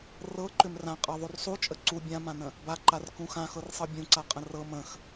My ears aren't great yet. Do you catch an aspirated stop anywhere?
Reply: no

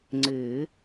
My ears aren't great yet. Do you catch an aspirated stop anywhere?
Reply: no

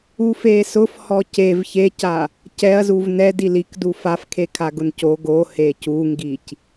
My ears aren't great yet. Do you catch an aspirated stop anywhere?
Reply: yes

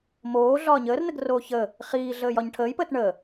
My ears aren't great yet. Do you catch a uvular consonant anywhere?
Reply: yes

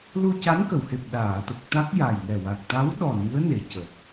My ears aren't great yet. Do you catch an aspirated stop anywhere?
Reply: no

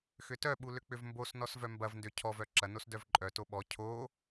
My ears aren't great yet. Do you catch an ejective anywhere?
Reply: yes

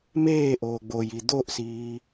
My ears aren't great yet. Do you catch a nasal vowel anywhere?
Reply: no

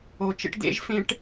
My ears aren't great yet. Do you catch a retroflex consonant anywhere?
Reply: yes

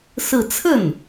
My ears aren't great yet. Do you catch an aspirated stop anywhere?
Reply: yes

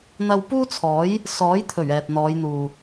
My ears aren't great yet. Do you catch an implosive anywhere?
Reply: no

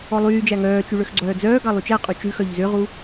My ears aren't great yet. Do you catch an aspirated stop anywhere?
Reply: no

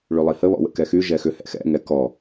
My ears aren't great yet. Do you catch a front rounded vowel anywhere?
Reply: yes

